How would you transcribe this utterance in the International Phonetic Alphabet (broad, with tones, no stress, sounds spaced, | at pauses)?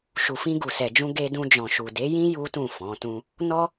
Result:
ʃ u˨ f ĩ˧ ɡ u˨ s ɛ˨ d͡ʒ ũ˧ ɡ e˧ d ũ˧ d͡ʒ ɔ̃˨ ʃ u˨ d e˨˦ j ĩ˦ j u˦ t ũ˦˨ f ɔ̃˨˦ t ũ˦ | n ɔ˦